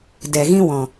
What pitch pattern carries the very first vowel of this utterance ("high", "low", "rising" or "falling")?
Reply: low